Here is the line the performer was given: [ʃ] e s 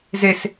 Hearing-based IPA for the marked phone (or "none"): z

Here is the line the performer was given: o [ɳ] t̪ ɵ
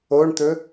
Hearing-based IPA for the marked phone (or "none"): ɳ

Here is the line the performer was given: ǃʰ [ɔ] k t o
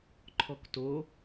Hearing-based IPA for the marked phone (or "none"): ɔ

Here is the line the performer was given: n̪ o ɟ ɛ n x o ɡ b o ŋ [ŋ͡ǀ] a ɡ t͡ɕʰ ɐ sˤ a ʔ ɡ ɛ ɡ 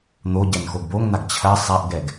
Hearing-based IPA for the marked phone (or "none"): n̪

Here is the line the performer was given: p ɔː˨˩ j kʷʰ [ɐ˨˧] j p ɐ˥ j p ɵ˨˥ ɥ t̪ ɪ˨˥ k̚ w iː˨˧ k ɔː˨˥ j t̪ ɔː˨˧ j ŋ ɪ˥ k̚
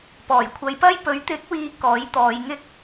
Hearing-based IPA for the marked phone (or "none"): ɐ˨˧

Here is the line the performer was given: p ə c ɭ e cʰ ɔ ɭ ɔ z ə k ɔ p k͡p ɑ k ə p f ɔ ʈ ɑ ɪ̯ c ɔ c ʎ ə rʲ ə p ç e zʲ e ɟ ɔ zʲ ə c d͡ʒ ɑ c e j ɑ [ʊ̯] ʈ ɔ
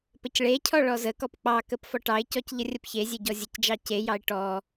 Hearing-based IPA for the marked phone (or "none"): ɪ̯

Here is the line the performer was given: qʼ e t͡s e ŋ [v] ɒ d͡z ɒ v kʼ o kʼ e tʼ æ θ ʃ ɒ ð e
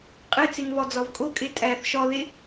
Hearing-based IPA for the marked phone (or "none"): v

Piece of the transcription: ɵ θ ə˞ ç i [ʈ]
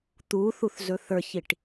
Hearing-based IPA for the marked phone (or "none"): ʈ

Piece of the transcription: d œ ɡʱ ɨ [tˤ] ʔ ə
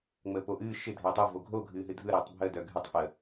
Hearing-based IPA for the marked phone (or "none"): tˤ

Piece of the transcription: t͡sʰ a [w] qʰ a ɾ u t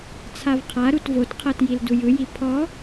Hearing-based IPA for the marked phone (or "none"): v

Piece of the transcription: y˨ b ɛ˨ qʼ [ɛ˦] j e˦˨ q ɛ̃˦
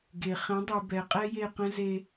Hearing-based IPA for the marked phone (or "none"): ɛ˦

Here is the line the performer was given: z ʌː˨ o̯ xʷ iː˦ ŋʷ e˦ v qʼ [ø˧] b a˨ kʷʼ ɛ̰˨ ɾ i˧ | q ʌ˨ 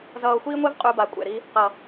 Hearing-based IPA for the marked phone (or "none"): u˧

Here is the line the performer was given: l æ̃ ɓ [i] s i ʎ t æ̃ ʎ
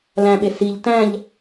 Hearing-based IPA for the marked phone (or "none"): e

